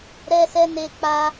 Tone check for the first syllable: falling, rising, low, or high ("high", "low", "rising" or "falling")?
high